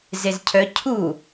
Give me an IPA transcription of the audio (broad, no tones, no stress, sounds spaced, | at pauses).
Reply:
z e z cʰ œ cʰ u